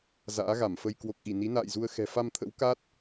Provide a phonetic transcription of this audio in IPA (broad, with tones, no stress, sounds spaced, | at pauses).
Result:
z a̰ː˧˥ ɣ a˧˩ m f ə˧ j k w o˨˩ k̚ ʔ i˧˩ n i˨˦ n a̰ː˧˨ j z u˧ ə̯ x ɛ̤˨˩ f a˧ m t̪ʰ ə̰˧˥ w k a˦˥ t̚